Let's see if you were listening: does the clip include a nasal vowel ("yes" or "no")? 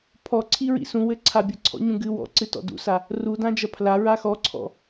yes